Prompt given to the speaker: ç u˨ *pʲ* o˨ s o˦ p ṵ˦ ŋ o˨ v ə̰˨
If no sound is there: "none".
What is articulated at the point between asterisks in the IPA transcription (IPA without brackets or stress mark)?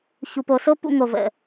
p